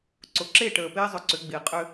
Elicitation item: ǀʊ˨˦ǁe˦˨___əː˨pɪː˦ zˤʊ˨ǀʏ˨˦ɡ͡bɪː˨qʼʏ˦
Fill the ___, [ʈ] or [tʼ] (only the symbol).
ʈ